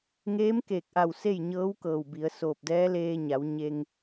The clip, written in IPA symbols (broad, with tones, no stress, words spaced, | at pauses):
ŋeː˧˥mkeː˧˩k̚ʔa˧˩w se˥˨jɲɤː˧˥wkɤː˧˩wbi˩˧ə̯ soː˧˩p̚dɛː˧˥ leː˧ɲa˩˧w ɲe˧ŋ